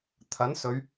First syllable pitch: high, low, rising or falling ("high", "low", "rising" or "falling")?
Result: rising